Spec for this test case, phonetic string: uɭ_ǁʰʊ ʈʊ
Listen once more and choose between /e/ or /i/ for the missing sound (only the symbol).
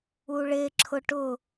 e